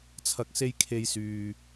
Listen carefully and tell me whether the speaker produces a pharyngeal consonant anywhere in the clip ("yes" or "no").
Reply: no